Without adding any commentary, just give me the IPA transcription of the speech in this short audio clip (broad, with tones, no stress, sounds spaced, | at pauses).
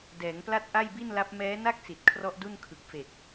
d ɛː˩˦ ŋ p l a˦˥ t̚ ʔ a˥˩ j b i˥˩ n l a˦˥ p̚ m ɛː˦˥ n a˥˩ k̚ s i˨˩ t̚ kʰ r ɔ˦˥ ʔ d u˥˩ n kʰ ɯ˨˩ k̚ f e˨˩ k̚